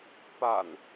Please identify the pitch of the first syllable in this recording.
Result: low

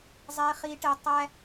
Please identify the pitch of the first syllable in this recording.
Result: low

